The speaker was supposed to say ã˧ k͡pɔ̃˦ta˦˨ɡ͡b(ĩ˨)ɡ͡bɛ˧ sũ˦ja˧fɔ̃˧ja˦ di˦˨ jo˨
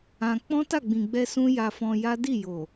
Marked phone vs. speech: correct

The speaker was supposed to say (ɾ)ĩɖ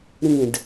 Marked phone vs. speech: correct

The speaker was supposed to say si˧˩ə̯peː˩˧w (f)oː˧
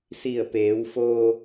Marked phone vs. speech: correct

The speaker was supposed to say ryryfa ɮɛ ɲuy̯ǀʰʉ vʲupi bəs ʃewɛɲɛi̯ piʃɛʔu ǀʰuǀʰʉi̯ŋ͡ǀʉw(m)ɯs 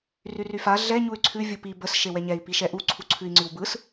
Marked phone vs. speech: incorrect: b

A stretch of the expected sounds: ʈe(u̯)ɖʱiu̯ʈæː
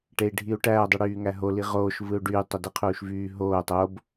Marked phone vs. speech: incorrect: i̯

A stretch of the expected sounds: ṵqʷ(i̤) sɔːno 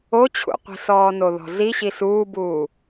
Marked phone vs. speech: correct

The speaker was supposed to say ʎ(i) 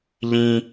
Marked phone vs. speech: incorrect: ĩ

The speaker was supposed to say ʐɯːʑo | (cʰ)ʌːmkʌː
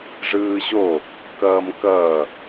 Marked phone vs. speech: incorrect: k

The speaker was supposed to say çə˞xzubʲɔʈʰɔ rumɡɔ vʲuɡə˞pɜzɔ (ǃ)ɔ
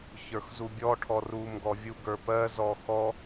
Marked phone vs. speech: incorrect: x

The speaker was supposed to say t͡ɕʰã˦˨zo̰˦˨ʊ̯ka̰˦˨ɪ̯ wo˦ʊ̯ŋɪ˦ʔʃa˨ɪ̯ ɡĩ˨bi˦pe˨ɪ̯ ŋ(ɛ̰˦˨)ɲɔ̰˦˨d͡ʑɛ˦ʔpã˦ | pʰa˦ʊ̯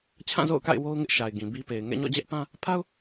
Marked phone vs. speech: correct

